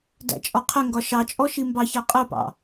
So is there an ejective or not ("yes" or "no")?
yes